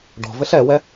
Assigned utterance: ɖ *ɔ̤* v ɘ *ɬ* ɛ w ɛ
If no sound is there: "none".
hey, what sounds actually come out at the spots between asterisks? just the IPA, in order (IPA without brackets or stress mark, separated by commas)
ɔ̤, ɬ